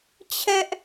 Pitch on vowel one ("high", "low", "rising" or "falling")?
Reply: high